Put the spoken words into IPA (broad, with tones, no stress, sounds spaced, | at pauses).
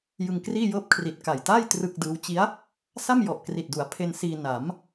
j ɯ˧ ŋ k r iː˥˩ j ɤː˥˩ p̚ kʰ r i˨˩ t̚ k a˨˩ j t a˥˩ j t r ɯ˥˩ k̚ d ɯː˦˥ w t͡ɕ i˦˥ a̯ | s a˥˩ m j ɔ˨˩ ʔ k r i˨˩ t̚ d u˩˦ a̯ pʰ e˧ n s iː˧ n a˩˦ m